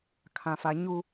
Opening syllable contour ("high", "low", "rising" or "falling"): low